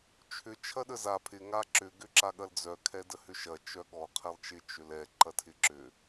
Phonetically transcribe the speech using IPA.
t͡ʃʰʏ t͡ʃʰɐɗəza pʰɪ ŋaǁʏ ɡʏǁaɠɐld͡zœ kʰɛdəhʏʃɐ t͡ʃœɠɔ qʰɛlˠt͡ʃɪ t͡ʃʏlɛ ǃɐtʰɪǁʏ

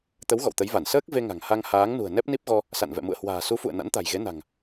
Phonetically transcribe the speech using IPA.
t̪ə˨˦w ɣɔ̰˧˨wt̪ə˨˦jva˧˩n səː˦˥k̚ ve˧ŋa̤˨˩ŋ ha˧ŋhaː˨˦ŋnṳ˨˩ə̯ nɛ˦˥p̚ni˦˥p̚ɣɔ˧ | sa̰˧˨n vɛ̰˧˨mṵ˧˨ə̯ hwa̤ː˨˩su˨˦fṵ˧˨ə̯ na̰˧˥nt̪a̤˨˩jɣe˨˦na̤˨˩ŋ

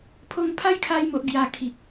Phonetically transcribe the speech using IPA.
pʰo˧ŋpʰa˦jkʰa˧jmo˨ʔ ɡja˧ kʰi˨k̚

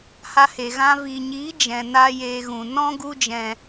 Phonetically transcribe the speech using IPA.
ha˧he˨ ɣã˧ viː˨ɲiː˨˦ d͡ʒɛ̃˨ na˧ jeː˧ɣũ˨ nɔ̃˦ɡu˧d͡ʒɛ̃˨

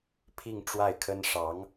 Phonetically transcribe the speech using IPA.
pʰi˥˧ŋʈ͡ʂwa˥˩ɪ̯kʰə˥n ʂɑ˧˥ŋ

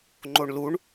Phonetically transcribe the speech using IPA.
ŋ͡ǃoɳluɳ

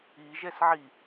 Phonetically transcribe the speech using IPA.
iʒɛsʕi

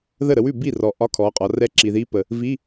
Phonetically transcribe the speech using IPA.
ðə˥˩ɾə˧wʉ˥˩ bi˥˩rɔ˩ ʔɒ˧˥˧kʰɔ˩˧qʼɒ˩˧ rɛ˧˥ǁi˩ði˧˥pə˩ | vi˧˥˧

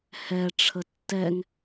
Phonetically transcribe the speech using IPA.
hɛʈ͡ʂʰə tːɛŋ

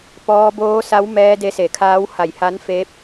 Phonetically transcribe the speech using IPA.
pɔː˧ boː˧˥sa˧˥w mɛː˧ de˧˥se˧˩kʰaː˧˥w ha˧˩jha˧˥nfeː˧˥p̚

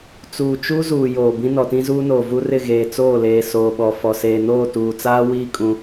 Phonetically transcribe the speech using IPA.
t͡suː˨t͡ʃu˦zuː˨ joː˨ bĩ˦ nɔ˨tĩ˦zuː˦noː˨ vu˦rɪ˦˨ ɣeː˨t͡soː˦˨leː˨ soː˨ɓɔ˨ fɔ˨seː˨ noː˦˨tuː˨t͡saː˦wiː˦ kʼũ˦

